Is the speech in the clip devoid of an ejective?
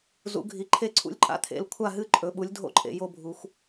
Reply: no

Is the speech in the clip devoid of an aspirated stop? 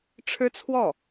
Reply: no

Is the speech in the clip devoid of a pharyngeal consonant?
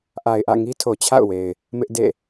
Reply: yes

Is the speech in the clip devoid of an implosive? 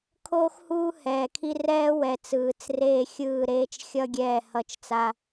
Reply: yes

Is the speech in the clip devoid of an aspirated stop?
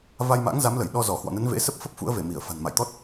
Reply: yes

